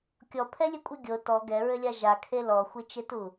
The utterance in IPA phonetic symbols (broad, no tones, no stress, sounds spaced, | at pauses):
kʲ ɔ pʰ ɛ lʲ ɘ kʷʼ ɨ ɡʲ o t ɔ ɡ ɛ ɹ ɘ lʲ a ʒ a kʰ e l ɔ xʷ ɨ t͡ʃ e t u